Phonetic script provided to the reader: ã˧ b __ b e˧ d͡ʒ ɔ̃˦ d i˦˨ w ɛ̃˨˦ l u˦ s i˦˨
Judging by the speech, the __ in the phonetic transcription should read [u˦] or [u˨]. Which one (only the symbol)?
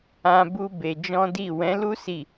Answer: u˦